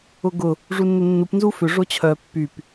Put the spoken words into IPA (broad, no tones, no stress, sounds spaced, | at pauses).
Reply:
ʊ ɡ ʊ | ʐ u nː ʏ nː u p n z u f ʏ ʐ o t͡ɕʰ œ pː y p